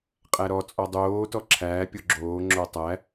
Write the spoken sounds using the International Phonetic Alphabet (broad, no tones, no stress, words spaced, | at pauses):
qʼæɾɔt͡sʼɔ dˤoːtɔ ǁʰæːpʲo ɡ͡ǁoːŋ͡ǁo tˤæ